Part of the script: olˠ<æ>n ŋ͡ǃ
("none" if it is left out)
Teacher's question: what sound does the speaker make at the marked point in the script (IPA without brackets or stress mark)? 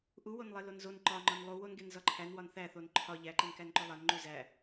æ